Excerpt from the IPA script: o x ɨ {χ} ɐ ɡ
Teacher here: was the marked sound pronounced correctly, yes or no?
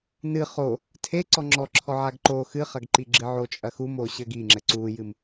yes